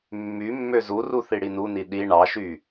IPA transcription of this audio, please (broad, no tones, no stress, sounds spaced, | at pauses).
mː y mː ø z u r u θ i ɽ i n u n i ɗ i ɳ ɑ ʃ y